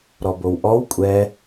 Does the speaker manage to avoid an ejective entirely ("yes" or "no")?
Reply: no